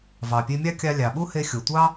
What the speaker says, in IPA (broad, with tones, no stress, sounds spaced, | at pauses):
v ɑ˩ pʲ e˧ mʲ ɑ˥ kʲ ɑ˧ lʲ ɑ˩ ɓ u˥ h e˧ xʲ o˩ tʷ ɑ˥